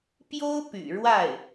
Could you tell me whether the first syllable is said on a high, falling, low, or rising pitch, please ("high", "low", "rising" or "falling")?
high